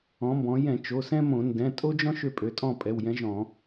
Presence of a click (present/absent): absent